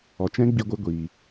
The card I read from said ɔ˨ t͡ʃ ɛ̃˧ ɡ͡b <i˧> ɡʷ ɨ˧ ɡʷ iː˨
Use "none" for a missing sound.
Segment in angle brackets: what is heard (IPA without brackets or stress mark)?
i˧